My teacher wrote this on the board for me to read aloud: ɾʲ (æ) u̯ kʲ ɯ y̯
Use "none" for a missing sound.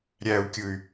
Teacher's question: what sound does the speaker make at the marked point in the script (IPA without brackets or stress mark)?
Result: æ